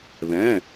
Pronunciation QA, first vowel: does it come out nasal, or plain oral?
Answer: nasal